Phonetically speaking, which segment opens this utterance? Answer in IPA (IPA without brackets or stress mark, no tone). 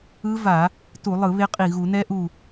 ɯ